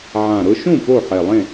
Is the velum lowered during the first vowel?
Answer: yes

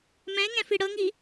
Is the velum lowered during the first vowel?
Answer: yes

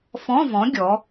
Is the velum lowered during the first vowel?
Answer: yes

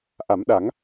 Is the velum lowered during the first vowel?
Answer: no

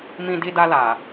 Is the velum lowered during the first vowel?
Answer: yes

